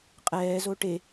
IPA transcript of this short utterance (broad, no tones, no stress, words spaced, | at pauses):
qʼɛːzo ʈe